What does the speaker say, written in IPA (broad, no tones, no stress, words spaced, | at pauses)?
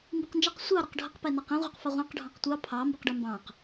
mbiqnd͡ʒaq sʷɑ ɾɛqɖʱaq pɛnɑqĩ ʁʷɑqfɑʁʷɑ̃q ɖʱɑ̃qtʷɑ pʰɑ mbiqɖɛmbɑ̃q